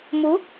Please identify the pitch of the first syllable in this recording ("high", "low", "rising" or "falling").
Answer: rising